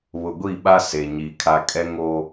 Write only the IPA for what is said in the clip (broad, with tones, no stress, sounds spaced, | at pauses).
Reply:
β ʊ˨ ɡʷ i˦˨ ɓ a˦ s e˨ ɲ i˨ kʰ a˦ kʼ ɛ˦ ŋ o˦